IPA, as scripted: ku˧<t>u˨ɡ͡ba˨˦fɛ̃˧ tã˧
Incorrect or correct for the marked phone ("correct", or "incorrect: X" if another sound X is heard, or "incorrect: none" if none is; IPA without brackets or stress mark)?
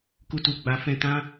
correct